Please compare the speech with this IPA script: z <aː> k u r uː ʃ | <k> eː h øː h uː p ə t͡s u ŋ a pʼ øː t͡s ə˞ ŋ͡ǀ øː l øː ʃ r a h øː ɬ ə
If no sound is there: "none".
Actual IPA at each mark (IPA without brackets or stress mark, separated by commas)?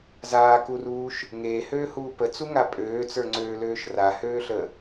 aː, ŋ